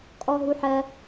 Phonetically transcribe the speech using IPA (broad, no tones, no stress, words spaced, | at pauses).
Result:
kʼɔɦuħɜ